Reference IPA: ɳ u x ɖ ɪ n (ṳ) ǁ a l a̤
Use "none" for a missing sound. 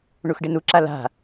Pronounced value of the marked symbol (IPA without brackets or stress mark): u